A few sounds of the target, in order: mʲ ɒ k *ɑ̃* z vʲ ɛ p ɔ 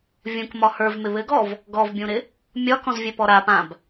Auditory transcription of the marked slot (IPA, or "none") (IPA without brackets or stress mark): ɔ̃